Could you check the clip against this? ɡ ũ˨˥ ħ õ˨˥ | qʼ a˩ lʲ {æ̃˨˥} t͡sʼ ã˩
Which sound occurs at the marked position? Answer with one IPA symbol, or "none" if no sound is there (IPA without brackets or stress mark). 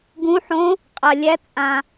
æ˨˥